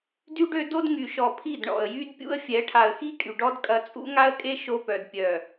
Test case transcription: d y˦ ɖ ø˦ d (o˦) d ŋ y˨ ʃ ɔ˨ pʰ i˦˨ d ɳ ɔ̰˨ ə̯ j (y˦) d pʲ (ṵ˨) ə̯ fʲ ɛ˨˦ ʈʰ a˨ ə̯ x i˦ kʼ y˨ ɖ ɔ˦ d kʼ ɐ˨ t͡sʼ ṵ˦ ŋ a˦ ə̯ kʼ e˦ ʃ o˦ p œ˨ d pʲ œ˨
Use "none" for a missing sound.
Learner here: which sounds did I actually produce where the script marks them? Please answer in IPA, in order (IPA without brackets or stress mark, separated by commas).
o˦, y˦, ṵ˦